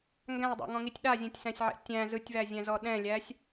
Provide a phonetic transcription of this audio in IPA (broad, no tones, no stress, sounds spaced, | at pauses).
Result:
ŋ ɡ æ̃ ɪ̯ dˤ æ̰ ŋ ɔ̃ ŋ i tʲ ɗ a zʲ ɛ̃ tʲ s æ̃ sʲ ʕ ɛ̰ tʲ æ̃ z ɯ tʲ v æ zʲ æ̃ z ɔ ɗ ɛ̃ lʲ æ sʲ